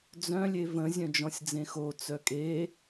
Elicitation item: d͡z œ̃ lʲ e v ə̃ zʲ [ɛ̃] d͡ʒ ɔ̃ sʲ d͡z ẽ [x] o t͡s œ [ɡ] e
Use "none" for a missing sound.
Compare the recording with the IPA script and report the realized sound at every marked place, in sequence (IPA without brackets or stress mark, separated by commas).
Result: œ̃, x, kʼ